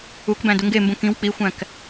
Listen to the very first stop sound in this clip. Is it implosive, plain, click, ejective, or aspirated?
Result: plain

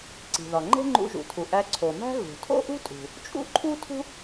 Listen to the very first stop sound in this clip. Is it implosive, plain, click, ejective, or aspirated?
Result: click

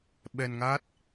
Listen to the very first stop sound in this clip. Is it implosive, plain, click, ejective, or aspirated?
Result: implosive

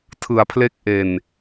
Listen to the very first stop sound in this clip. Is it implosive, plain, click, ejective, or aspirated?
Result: aspirated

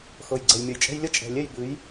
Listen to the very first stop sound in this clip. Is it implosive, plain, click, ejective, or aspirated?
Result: click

